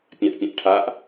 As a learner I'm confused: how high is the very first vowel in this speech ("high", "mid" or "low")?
low